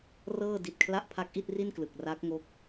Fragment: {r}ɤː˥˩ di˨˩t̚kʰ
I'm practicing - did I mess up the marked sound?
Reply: no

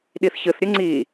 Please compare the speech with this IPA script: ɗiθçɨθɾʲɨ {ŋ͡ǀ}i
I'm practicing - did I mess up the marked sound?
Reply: no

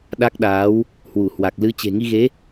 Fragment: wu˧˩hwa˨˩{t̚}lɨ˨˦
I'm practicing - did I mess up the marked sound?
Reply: yes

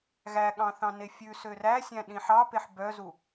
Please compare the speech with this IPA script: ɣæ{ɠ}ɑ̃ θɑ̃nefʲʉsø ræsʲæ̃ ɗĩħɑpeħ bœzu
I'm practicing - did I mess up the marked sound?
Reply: no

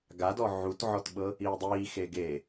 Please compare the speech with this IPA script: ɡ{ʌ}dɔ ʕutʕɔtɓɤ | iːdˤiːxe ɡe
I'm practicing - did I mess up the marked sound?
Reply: yes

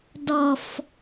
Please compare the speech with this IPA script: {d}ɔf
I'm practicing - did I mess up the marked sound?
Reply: no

